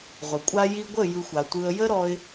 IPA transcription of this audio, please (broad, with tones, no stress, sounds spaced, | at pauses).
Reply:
ʁʷ ə˨ kʷʼ a˧ j i˧ ɡʷ ə˦˨ j ɯ˧ xʷ a˨ tʷ ɯ˧ ə̯ j ə˦ ɾ ɔ˧ ɪ̯